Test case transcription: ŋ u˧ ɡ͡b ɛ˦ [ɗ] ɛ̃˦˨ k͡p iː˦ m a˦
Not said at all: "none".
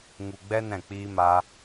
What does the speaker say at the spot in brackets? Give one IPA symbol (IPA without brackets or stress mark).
n